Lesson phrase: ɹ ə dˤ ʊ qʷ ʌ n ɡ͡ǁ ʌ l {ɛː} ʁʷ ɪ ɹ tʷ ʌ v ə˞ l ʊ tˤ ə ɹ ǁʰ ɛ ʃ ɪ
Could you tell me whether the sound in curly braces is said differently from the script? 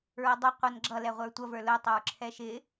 yes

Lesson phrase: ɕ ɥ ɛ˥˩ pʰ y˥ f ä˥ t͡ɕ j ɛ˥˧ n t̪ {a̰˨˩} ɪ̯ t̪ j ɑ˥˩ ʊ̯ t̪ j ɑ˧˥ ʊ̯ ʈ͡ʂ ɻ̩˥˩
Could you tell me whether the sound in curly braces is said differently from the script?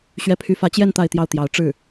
yes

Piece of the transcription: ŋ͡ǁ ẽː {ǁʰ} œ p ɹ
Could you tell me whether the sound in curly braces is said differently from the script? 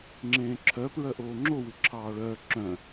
no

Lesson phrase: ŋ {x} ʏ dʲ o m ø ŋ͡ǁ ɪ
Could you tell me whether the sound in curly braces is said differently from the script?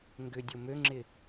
yes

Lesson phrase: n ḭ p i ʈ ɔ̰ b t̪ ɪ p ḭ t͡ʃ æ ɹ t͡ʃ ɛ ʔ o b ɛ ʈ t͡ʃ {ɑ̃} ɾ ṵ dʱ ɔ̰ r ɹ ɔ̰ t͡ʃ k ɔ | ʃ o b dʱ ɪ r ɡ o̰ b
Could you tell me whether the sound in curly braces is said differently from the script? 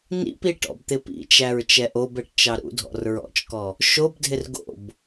yes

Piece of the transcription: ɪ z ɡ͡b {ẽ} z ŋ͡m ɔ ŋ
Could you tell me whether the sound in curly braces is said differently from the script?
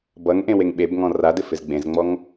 no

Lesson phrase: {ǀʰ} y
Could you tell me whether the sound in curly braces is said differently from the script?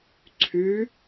no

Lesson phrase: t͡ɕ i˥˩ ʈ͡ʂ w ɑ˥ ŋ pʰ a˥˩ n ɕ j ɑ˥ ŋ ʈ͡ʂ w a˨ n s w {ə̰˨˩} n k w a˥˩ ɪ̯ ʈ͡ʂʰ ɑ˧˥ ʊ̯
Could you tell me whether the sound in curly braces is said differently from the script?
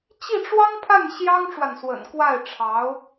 no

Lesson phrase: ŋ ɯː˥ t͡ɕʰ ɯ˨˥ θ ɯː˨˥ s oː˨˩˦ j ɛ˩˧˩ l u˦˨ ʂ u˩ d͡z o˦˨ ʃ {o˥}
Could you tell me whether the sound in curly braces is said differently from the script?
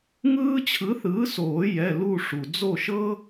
yes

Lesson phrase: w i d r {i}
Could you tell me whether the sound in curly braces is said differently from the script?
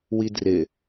yes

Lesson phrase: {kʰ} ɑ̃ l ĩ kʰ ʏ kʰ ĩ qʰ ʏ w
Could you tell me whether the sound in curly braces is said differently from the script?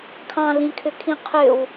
no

